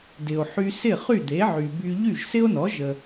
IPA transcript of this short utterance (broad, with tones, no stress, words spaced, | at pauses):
dɪ˩o̯ħy˧sɪ˥˩ χy˥˩d̪e˩˥ʕy˩by˧ ʎy˥˩ʒsɪ˥o̯nɔ˩˥ ʒə˩